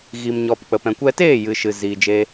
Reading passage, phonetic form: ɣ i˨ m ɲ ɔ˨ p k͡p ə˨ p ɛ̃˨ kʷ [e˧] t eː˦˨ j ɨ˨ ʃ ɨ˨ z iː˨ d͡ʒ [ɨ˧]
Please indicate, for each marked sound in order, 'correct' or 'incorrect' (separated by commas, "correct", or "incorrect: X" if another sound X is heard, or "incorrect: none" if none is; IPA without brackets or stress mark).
incorrect: ɛ˧, incorrect: e˧